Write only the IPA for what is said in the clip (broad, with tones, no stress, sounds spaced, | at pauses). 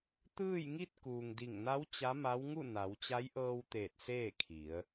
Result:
t̪ ɯː˥˨ j ŋ i˥˨ t̚ k uː˩ ŋ d i˧˩ ŋ n a˧˥ w t͡ɕ a˧˥ m a˧˥ w ŋ u˥˨ n a˩˧ w t͡ɕ a˧˥ j ʔ ɤː˧ w t̪ eː˧˩ t̚ s eː˥˨ kʰ i˩˧ ə̯